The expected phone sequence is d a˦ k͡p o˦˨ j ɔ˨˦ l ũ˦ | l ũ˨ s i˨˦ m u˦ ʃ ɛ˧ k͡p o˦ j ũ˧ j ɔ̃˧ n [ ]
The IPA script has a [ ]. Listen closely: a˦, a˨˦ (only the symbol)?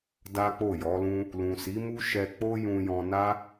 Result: a˦